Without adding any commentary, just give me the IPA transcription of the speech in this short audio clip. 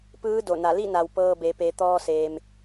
p ɯː˧˥ d o˧˩ n a˧˩ l i˥˨ n a˩ w p ɤː˧ b e˩˧ p e˩˧ t̪ ɔː˧ s eː˩ m

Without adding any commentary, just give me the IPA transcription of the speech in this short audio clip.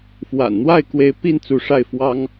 f w a̰˨˩ n n̪ w a˥˩ ɪ̯ k w e˧˥ ɪ̯ p i˥˩ n t͡s u˧˥ ʂ a˥˩ ɪ̯ f w ɑ˥ ŋ

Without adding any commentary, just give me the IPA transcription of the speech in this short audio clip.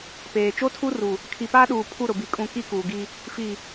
p eː˨ t͡ʃ o˦ tʰ u˦ r u˨ | kʰ i˨ p aː˦ ɗ uː˨ pʰ u˦˨ ɾ ʊ˨ b i˨ kʼ ũ˨ k i˦ k uː˨ ɡ i˦ | f i˨

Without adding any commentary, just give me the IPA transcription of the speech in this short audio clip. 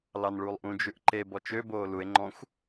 l ɑ n ɭ uː lˠ ʔ ũ d͡ʒ ʉ ʔ ǃ e b ɔ t͡ʃ ø b oː l u e̯ ŋ͡ǃ ɔ̃ xʷ

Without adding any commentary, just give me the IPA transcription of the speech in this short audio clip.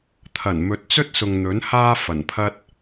t̪ʰ ɐ˨˩ n m ɵ˨ t̚ t͡s ɵ˥ t̚ s ʊ˨ ŋ n̪ ɵ˨˥ n h aː˥ f ɐ˨˩ n pʰ ɐ˥ t̚

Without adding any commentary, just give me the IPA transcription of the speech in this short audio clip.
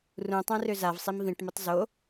r ũ tˤ œ̃ r ø z a v sˤ i m v ĩ ʈ m ə tˤ z o

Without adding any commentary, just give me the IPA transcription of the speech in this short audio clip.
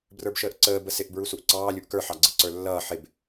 b r ə˞ b ʃ əː ʔ ǀ əː b ə s ɪ ʔ b ɹ u s u ʔ ǀ ɑː lʲ u ʔ k ə˞ ħ ɑ ɡ͡ǀ ɪ ǀ ə˞ lː ʌː ħ ɪ b

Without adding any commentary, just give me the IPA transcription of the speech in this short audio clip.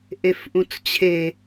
ʔ e f ʔ ũ t͡s t͡ɕʰ e

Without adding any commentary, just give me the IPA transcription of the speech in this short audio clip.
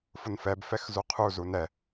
f ʊ n f ɛ b f ɛ x z u qʰ u z u n ɛ

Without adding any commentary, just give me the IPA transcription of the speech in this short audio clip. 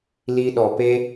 l i˧ ɗ ɔ˨ p e˦

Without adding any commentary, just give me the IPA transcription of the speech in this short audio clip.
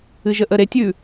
ɨ ʒ ə ʔ ə ɾ e tʲ ʉ

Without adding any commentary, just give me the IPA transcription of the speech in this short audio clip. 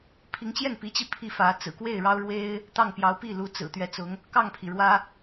pʰ i˧˥ ŋ t͡ɕ j ɛ˥˩ n p i˧˥ t͡ɕ i˧ pʰ i˥˩ f ä˧˥ t͡s ɹ̩˨˩ k w e˥˩ ɪ̯ ɻ ɑ˥ ʊ̯ ɻ w e˥ ɪ̯ | t̪ ɑ˥˩ ŋ p j ɑ˧˥ ʊ̯ p i˥˩ l u˧˥ t͡s ɹ̩˨˩ t̪ ɥ ɛ˧˥ t͡s ʊ˧˥ ŋ | k ɑ˥˩ ŋ pʰ i˩ ɻ w ä˥

